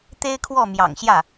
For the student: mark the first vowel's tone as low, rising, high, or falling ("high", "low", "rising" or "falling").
high